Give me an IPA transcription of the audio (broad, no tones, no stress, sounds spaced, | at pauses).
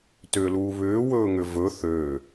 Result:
t ʏː l uː β ʏː w ɵː ŋ ʏ v ɵ θ øː